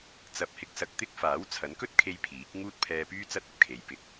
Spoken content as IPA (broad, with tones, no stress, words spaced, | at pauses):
t͡sɐ˨˥p̚hɪ˨˥k̚sɐ˨k̚ t̪ɪ˥k̚ faː˨˥wt͡sʰɐ˨˥nkɵ˥t̚kʰe˧j pʰiː˨˥k̚ ŋuː˥t̚pʰɛː˧pyː˥t͡sɐ˥t̚ ɐ˧p̚kʰe˨˧j pɪ˨˥k̚